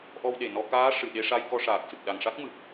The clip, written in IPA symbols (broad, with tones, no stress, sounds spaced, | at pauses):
ʔ ɔ˧ w ɗ e˨˩ n ɔ˧ k aː˧˥ ʂ ɨ˨˩˨ ɗ e˧ ʂ a˧ j k ɔ˧ ʂ aː˨˩ k̚ s ɨ˨˩ k̚ ɗ a˨˩ ŋ ʂ a˦˥ k̚ m ɨ˨˩ k̚